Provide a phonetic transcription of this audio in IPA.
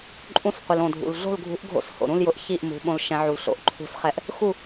ǃʼ ũ˨˦ s qʷ ɪ˩ l õ˩ dʱ ṵ˩ l ɮ o̤˥˨ l ɡʱ ṳ˨˦ ʔ ɡʱ o̰˨˦ s h o̰˩ ɾ ũ˥˨ l j ʊ˨˦ ʔ ç i˥˨ ʔ m ṳ˨˦ ɓ õ˨˦ l ʃ ɛ̃˨˦ ʕ u˩ l ɬ o̰˨˦ ʔ ǃʰ ṳ˨˦ s χ ɛ˨˦ ʔ | x u˥˨

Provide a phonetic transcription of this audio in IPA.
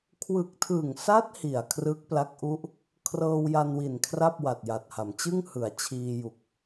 kʰ w ɯ˨˩ k̚ tʰ ɯ˨˩ ŋ s a˦˥ t̚ h i˨˩ a̯ kʰ r ɯ˦˥ k̚ p l a˦˥ k̚ ʔ u˦˥ ʔ | kʰ r ɤː˧ w j a˧ n w i˨˩ n kʰ r a˥˩ p̚ w a˨˩ t̚ j a˨˩ t̚ h a˩˦ m t͡ɕ ɯ˥˩ ŋ h ɯ˩˦ a̯ t͡ɕʰ iː˧ j u˨˩ k̚

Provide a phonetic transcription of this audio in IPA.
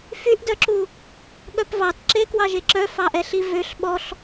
f y ʔ d œ ǁ u | ɠ œ p v ɑ t ǁ e k w ɑ ʒ e ǁ œ f ɑ ʔ ɛ ɬ i v ø ɬ ɓ ɔ ɬ

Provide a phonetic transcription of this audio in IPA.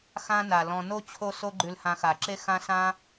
x ã˦ n a˩ l ɔ̃˨ n o˥ t͡ɕʰ o˦ s o˦ ɡ͡ǃ ʉ˨ l h ã˨ x a˩ ǁ e˦ x ã˦ s ã˦

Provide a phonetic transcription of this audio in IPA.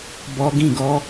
b ɔ˧ ɡ ĩ˦˨ ɡ ɔ˧

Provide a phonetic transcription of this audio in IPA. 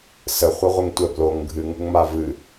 s ə χʷ ɯ ʁʷ ɨ ŋ tʷ ɛ b l o ŋ ɡʱ ɨ ŋ ṳ ŋ m a v ɨ

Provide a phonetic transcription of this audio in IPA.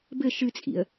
b ɘ ʃ ɨ t͡sʼ ḭ ə̯

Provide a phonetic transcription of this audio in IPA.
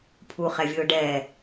pʰ u χ ɛ vʲ ɯ ʊ̯ ɖ ɛ

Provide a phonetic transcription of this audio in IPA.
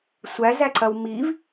sʷ æ z æ ǀ ɐ w m i v

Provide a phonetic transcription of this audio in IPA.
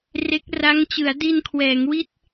r e˦˥ k̚ r a˦˥ ŋ t͡ɕ ɯ˩˦ a̯ d i˧ n kʰ w ɛː˩˦ ŋ w i˥˩ t̚

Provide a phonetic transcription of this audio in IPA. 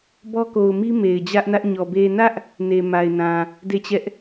b ɔ˦ k o˨ ʊ̯ m i˦ m e˨ ɪ̯ d͡ʑ ä˦ ʔ n ä˦ ʔ ɲ ɔ˨ b e˨ n ä˦ ʔ | n e˨ m a˨ ɪ̯ n ã˨ | d e˦˨ t͡ɕ ɛ˦ ʔ

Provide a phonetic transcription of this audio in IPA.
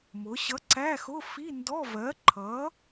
m ʊ˩˧ ɕ ʌ˨˥ ǀ æ˧˥˧ x ʊ˧˥˧ f i˧˥˧ n d ɔ˧˥˧ v ɜ˨˥ ǃʰ ʌ˨˥

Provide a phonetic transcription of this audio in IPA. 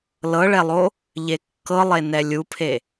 l ɤ ɭ ɛ lˠ o | ʎ e kː ɤ lˠ e n ɛ lʲ u pʰ e

